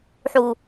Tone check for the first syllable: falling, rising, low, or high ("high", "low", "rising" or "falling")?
low